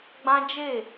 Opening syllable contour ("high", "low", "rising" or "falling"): high